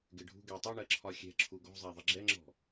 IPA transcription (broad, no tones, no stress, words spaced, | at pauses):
ɡɪɖʱṳ ɡɛ tˤɪɳɜ ǁʰɒxʲɛ̤ ǁʰuɡɔ̤ zˤæðˤɪɡ͡ǁɛŋ͡ǁɔ̤